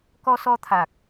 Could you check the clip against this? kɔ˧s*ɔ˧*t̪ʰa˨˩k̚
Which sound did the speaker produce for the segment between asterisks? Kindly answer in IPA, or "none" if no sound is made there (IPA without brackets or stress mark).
ɔ˧